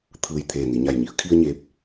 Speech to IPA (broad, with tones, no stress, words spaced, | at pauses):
t̪ʰɯː˩j t̪ʰeː˧˩ni˩˧ɲa˧˩jɲi˩˧ə̯ kʰi˧ə̯ ɲeː˧˥p̚